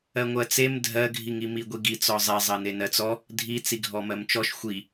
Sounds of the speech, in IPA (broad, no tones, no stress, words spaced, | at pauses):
ɜŋʷɜt͡sem dʱɜɡʱiŋi miɡʷiɡi t͡sɔzˤezˤɜne nɜt͡sɔ | dʱi t͡siɡʱɔmɜmt͡ʃɔʃ xʷi